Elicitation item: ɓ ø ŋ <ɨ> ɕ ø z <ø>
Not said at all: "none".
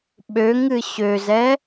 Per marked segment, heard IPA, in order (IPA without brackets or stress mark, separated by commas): ɨ, ɛ